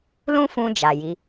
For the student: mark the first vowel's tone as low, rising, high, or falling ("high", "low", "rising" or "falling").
high